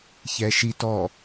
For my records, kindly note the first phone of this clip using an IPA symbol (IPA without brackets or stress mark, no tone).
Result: ç